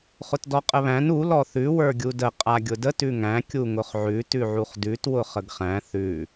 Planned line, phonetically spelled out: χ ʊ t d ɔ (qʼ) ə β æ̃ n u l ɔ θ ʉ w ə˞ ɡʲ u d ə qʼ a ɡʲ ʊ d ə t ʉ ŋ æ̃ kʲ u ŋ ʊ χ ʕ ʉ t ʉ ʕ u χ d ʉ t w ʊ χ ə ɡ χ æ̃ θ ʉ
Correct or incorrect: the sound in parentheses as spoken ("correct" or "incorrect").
correct